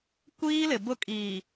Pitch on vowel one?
high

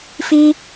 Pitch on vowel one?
high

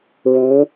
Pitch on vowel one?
rising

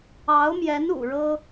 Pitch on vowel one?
rising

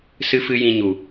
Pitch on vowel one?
high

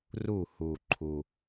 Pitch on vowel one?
falling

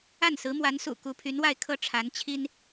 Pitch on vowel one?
falling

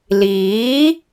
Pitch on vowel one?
rising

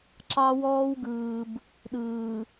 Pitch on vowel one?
high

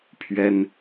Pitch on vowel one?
high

